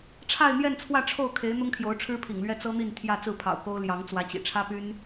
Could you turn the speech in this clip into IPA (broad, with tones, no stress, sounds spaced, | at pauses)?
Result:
ʈ͡ʂʰ a˥˧ ɪ̯ n̪ j ɛ˥˧ n t͡sʰ w ä˥˧ ʈ͡ʂʰ o˥˩ ʊ̯ kʰ e˧˥ ɪ̯ n̪ ʊ˥ ŋ t̪ʰ j o˧˥ ʊ̯ ʈ͡ʂʰ ɻ̩˥ pʰ ḭ˨˩ ŋ l ɥ ɛ˥ t͡s ɤ˥ n̪ i˥˧ n t̪ʰ j ä˥˧ t͡s ɹ̩˥˩ pʰ ɑ̰˨˩ ʊ̯ k o˥ ʊ̯ l j ɑ˧˥ ŋ t͡s w ä˧˥ t͡ɕ ḭ˨˩ ʈ͡ʂʰ ä˥ p y˥ n